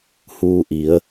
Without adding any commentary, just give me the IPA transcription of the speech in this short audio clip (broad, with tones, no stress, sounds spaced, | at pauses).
h uː˧ ʔ i˩˧ ə̯